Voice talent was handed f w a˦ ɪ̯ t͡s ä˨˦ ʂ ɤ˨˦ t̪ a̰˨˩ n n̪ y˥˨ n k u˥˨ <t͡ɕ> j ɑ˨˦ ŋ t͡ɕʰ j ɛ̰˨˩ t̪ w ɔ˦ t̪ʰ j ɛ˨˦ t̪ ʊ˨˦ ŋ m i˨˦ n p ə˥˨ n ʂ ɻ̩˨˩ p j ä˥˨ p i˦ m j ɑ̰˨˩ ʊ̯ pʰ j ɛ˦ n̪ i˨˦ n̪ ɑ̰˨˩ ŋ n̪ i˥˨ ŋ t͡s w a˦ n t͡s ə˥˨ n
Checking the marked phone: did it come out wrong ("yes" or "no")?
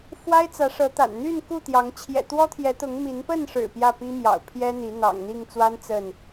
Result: yes